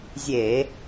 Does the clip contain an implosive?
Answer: no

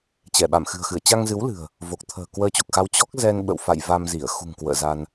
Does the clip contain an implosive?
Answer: yes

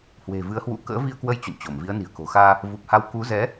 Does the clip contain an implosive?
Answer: no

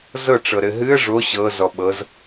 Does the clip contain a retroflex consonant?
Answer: yes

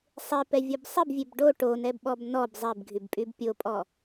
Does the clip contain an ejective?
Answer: yes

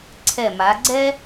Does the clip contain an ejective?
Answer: no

